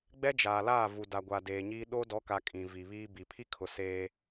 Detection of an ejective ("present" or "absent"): present